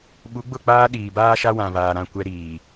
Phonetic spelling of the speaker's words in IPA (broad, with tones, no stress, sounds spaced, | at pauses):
ɓ u˨˦ ɡ͡b ʊ˦˨ k͡p aː˦ ɗ iː˨ b aː˦ ʃ a˦ w ã˨ β aː˨ ɾ ã˦˨ kʷ ɛ˦ ɾ iː˨